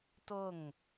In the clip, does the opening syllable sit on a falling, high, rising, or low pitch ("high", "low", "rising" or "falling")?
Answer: falling